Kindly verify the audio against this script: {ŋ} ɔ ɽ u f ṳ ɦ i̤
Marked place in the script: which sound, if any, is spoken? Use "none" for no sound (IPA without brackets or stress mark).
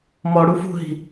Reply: m